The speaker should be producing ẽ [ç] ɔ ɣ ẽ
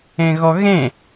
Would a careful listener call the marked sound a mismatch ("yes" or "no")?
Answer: yes